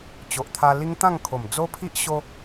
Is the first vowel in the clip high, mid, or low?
mid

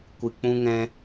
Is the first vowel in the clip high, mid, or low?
high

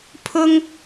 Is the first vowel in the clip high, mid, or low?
high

